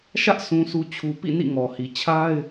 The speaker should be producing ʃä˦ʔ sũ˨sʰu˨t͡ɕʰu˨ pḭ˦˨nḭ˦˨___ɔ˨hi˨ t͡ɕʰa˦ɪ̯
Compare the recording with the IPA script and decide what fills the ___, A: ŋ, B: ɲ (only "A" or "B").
A